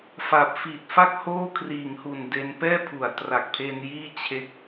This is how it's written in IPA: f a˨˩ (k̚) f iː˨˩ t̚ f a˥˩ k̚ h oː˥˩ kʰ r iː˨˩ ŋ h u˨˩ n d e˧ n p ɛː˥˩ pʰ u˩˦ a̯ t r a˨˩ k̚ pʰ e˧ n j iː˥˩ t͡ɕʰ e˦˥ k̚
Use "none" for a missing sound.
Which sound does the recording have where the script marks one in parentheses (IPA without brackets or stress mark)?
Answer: p̚